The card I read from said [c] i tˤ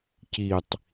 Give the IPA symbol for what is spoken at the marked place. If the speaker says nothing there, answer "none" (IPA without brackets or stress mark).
c